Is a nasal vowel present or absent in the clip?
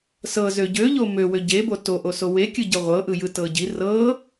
absent